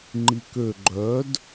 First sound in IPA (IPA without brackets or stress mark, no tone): ŋ͡ǃ